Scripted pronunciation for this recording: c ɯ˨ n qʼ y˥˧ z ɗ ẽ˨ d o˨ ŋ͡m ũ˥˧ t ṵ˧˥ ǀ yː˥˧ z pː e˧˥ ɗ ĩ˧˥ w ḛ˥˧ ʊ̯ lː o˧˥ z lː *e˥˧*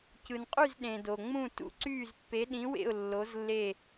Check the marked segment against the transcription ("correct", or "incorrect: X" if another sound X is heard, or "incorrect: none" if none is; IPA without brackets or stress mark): correct